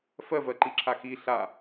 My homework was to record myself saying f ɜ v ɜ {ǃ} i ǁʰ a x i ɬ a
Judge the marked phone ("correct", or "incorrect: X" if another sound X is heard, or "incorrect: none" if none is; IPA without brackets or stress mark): correct